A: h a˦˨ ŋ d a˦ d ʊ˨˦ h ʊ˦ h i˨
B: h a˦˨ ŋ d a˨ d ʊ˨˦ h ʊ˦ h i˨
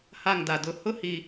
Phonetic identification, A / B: B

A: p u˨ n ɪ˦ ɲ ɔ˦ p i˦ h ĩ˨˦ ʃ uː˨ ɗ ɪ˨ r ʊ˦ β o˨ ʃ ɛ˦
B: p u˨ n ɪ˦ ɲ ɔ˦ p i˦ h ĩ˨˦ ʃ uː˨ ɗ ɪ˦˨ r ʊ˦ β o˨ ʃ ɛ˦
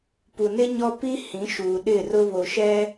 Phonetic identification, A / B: B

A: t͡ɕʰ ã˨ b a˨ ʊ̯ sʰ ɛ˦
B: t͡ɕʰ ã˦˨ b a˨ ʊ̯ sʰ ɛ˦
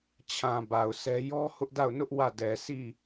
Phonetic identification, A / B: A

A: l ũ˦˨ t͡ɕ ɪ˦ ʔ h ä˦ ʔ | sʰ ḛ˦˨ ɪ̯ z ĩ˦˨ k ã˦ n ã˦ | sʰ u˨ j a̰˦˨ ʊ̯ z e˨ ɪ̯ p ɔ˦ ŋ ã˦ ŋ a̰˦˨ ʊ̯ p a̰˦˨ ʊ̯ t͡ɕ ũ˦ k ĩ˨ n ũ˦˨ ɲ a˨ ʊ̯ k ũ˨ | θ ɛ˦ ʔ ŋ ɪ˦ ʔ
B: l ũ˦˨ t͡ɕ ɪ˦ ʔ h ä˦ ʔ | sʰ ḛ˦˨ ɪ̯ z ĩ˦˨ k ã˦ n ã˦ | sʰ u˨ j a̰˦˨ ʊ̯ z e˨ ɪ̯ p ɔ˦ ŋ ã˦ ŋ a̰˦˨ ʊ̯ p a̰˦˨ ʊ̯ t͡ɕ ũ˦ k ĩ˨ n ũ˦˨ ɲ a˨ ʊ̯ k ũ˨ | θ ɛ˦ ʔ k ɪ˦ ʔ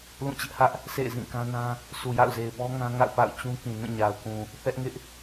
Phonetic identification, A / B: A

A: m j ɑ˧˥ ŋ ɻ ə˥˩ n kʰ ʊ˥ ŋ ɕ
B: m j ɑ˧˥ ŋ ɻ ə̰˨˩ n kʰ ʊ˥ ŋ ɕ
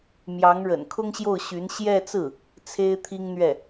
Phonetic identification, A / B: B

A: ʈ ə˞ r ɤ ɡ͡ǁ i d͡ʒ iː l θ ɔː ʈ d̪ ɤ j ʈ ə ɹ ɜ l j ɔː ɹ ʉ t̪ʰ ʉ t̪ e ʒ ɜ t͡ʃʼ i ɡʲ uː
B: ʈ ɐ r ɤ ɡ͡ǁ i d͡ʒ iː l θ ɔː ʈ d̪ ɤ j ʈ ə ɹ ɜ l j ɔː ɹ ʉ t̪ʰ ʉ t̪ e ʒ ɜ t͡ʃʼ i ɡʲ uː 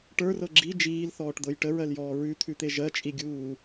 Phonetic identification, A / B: A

